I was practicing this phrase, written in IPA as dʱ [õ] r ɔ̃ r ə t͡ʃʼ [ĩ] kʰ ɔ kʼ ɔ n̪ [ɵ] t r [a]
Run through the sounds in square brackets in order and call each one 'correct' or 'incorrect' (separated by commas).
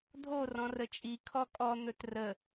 incorrect, incorrect, correct, incorrect